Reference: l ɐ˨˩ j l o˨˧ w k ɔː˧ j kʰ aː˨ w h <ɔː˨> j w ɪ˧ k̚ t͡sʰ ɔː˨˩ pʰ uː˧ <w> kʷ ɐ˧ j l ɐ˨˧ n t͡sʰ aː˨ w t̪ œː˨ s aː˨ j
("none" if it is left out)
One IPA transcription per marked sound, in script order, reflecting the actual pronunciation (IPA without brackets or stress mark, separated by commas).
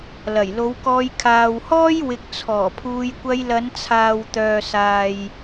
ɔː˥, j